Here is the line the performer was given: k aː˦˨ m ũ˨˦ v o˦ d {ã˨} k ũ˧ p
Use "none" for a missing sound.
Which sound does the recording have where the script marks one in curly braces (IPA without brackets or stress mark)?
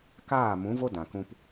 ã˨